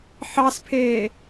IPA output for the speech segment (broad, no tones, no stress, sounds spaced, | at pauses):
ħ ɑ s pʰ eː